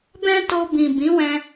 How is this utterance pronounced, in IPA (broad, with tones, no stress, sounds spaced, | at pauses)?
b ɛ̃˦ t o˧ b ĩ˨ b ĩ˨˦ w ɛ̃˧